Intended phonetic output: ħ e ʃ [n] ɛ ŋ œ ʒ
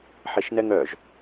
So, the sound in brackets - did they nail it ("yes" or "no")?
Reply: yes